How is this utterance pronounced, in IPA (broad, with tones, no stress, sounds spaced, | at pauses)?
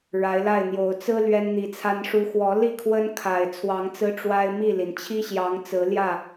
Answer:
ɻ a˨˦ ɪ̯ l a˥˨ ɪ̯ n̪ j o˨˦ ʊ̯ t͡s ɹ̩˦ l ɥ ɛ˦ n n̪ i˨˦ t͡sʰ a˦ n ʂ u˦ x w ɔ˨˦ l i˥˨ kʰ w ə˦ n kʰ a˨˩ ɪ̯ t͡sʰ w ɑ˨˦ ŋ t͡s ɹ̩˦ ʈ͡ʂ w a˦ ɪ̯ m i˥˨ l i˩ n t͡ɕʰ i˦ ɕ j ɑ˨˦ ŋ t͡s ɹ̩˨˦ l j ä˥˨